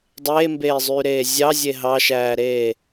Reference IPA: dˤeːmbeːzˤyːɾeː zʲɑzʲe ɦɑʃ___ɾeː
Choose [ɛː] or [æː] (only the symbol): æː